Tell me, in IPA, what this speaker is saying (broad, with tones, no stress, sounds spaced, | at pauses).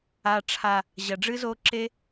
a˨ ʈ͡ʂʰ a˨ | ʑ ɐ˨ ɖ͡ʐ ɨ˦ z o˧ ǁ e˦